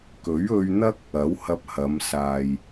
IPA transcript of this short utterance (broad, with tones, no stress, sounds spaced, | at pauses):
k ɵ˨˥ ɥ ɵ˧ ɥ n̪ ɐ˥ k̚ | ɐ˨˥ w h ɐ˧ p̚ h ɐ˨˧ m s aː˨ j